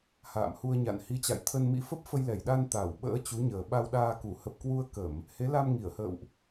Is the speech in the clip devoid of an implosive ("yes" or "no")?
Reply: no